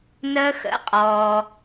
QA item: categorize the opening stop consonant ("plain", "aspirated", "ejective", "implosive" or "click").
ejective